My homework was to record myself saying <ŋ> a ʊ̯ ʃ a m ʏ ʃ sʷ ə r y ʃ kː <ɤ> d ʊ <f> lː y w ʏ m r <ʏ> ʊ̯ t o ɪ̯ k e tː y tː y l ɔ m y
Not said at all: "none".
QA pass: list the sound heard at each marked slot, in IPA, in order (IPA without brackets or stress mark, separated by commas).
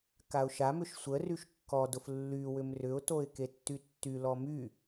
k, ɔ, f, ʏ